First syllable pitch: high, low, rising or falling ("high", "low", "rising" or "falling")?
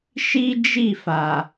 high